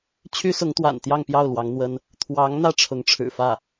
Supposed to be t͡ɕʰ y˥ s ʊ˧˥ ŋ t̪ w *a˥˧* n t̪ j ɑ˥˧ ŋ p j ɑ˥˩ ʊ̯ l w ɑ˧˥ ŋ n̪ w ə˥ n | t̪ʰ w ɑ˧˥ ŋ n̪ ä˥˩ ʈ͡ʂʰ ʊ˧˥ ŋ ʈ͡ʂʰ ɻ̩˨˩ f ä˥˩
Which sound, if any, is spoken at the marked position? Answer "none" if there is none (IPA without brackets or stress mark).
a̰˨˩